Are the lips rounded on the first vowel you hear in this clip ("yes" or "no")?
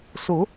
yes